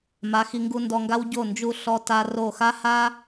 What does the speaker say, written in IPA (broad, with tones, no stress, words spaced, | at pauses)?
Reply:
ma˩˧ xi˩˧ŋɡu˧ndɔ˧ŋɡa˥w ɟo˧˩nd͡ʒu˧˩ ɬɔ˧ ta˧ro˧˩xa˥ ha˥